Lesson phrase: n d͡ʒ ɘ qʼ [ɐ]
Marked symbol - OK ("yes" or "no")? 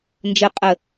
no